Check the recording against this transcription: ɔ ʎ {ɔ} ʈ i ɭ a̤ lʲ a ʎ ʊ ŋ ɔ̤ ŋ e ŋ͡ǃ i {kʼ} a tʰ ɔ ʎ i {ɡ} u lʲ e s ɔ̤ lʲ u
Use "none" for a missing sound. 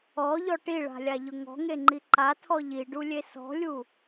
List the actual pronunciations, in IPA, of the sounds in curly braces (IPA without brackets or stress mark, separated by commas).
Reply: ɔ, ǃ, ɖ